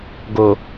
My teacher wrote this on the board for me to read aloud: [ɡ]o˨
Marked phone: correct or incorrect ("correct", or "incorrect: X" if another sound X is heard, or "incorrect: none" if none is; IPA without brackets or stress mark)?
correct